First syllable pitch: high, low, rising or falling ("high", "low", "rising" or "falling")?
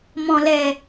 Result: low